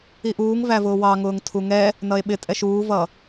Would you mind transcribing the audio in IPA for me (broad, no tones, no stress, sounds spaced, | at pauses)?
i ʔ uː ŋ v æ v ʊː w ɑ ŋ ʊː ŋ tʰ u ŋ ɛ | n ʌ e̯ ɓ ɪ tʼ ɛ ʃ uː v ʌ